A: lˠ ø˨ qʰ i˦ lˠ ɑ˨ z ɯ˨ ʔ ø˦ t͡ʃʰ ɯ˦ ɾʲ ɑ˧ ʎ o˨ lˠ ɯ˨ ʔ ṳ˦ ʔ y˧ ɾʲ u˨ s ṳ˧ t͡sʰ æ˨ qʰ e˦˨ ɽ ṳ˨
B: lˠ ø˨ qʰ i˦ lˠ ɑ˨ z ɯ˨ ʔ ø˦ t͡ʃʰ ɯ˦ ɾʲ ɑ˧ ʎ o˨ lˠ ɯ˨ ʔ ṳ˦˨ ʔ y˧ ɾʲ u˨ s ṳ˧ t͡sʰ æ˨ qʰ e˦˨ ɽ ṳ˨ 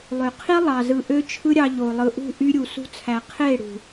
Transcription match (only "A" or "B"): B